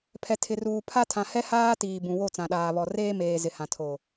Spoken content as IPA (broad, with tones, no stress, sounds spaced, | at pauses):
pʰ ɛ˨ tʰ ɪ˨ r uː˨ pʰ a˦ tʰ ã˨ h ɛ˦ h aː˦ t iː˨ b ũ˨ w o˦˨ t͡s ã˨ ɗ aː˨ β ɔ˨ r eː˦ m eː˨ z ɪ˨ h ã˨ tʰ o˨